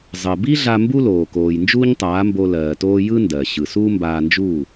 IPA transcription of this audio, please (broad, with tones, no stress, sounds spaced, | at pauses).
zˤ ɜ˩ b i˥ ɮ a˧ m b u˥ l oː˩ k oː˩ j n d͡ʒ uː˥ ɲ tˤ aː˩˥ m b o˧ l ɜː˩ t oː˥ j ɯ˥ n d ɜ˩ ɕ ɯ˩ s uː˥ m b aː˧ n d͡ʒ uː˥˩